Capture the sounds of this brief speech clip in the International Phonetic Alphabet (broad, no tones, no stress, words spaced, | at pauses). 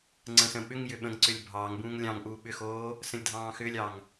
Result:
ŋ͡ǀə̃sə̃ɓʏŋjʏ ɓə̃ŋǀʏlʲ bʱɑːŋbũːŋ lʲɑ̃ŋʔuː ɓʏxoː | sə̃lʲdʱɑ̃ːxʏːlʲɑŋ